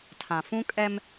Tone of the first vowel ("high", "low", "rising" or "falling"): low